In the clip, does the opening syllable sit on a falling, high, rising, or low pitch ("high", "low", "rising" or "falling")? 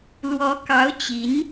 rising